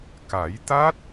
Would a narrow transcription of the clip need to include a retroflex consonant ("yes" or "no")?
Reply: no